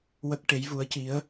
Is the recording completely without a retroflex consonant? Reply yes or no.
no